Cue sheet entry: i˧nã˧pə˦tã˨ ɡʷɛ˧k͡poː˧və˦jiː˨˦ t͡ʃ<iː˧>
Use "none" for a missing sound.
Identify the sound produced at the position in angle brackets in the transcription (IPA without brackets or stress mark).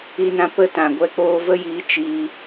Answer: iː˧